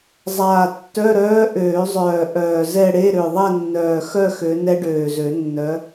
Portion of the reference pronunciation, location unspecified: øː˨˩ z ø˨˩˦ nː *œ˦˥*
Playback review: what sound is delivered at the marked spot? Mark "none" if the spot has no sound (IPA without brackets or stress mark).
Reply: œ˨˦